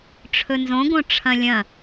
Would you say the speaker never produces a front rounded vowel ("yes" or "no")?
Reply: yes